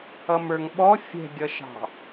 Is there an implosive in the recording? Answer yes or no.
yes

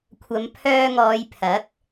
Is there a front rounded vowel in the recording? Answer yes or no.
yes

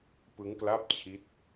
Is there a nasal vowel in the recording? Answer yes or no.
no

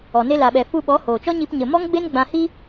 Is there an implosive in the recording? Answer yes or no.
yes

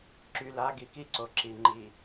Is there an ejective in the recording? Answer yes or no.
no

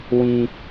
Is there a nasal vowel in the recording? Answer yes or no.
yes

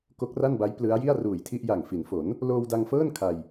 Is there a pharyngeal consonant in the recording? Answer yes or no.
no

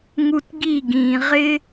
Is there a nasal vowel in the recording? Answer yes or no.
yes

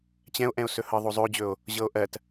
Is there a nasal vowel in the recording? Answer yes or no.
yes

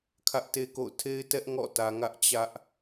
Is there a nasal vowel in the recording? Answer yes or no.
no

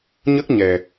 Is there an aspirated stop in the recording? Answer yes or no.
no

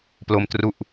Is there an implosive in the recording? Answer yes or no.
no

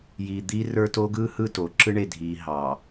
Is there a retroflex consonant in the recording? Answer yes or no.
yes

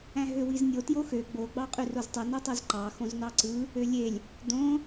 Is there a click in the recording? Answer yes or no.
yes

